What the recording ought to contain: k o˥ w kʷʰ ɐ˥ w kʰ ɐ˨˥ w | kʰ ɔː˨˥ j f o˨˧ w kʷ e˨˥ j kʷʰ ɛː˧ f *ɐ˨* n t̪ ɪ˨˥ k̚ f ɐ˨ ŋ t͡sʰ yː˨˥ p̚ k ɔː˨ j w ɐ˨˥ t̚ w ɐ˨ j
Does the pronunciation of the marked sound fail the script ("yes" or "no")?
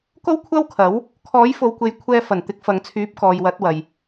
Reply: yes